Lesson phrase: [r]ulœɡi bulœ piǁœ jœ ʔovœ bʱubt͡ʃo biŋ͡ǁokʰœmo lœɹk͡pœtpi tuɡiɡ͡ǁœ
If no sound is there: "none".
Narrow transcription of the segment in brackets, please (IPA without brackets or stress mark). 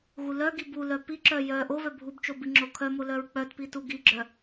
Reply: ɣ